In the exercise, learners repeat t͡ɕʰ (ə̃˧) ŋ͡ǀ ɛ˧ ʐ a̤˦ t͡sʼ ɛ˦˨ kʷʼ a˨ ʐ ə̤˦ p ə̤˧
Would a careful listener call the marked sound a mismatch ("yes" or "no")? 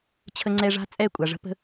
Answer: yes